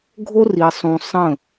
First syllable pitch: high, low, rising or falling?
high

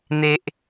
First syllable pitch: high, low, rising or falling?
low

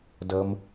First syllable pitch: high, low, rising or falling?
low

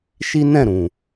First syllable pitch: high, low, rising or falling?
high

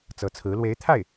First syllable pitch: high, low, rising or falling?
rising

